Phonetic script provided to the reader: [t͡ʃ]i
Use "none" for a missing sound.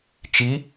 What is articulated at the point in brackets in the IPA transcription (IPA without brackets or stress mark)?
t͡ʃ